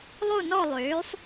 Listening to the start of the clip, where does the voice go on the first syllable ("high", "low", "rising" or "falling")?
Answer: falling